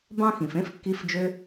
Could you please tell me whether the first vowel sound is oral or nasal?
nasal